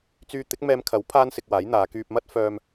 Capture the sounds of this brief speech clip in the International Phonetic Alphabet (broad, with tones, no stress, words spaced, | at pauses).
t͡syː˧t̪ɪ˨˥k̚mɛː˧mkʰɐ˨˥w pʰaː˥nsɪ˧k̚waː˨˥jn̪aː˨˧ kyː˧p̚mɐ˥t̚ fœː˧m